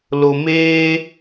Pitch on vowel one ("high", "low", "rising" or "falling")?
low